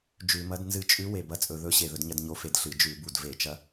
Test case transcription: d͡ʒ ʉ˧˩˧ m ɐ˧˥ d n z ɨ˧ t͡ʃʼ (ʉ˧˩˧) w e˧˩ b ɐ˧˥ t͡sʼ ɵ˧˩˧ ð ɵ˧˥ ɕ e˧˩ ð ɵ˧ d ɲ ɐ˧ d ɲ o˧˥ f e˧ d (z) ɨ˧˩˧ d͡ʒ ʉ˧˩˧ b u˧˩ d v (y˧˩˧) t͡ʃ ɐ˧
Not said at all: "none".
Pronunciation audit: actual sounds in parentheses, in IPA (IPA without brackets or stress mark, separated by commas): ʉ˧˥, ɬ, e˧˩˧